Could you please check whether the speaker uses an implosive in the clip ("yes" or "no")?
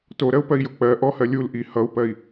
no